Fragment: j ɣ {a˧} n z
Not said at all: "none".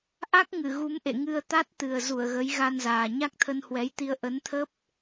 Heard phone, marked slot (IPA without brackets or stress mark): a˧